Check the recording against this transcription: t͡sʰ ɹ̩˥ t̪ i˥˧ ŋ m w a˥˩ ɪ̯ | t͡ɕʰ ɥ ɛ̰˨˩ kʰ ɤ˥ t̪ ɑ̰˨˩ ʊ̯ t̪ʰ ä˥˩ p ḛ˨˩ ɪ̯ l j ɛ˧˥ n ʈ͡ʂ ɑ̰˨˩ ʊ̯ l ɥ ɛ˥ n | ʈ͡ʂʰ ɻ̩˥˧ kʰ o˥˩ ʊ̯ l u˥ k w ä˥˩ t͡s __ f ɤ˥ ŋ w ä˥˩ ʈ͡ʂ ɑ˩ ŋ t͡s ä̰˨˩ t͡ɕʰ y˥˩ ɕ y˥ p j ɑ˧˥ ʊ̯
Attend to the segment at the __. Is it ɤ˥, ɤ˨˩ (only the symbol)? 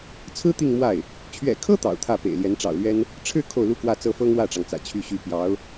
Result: ɤ˥